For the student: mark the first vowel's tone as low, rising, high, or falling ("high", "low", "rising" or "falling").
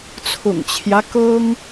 low